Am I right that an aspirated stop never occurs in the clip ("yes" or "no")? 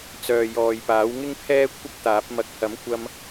no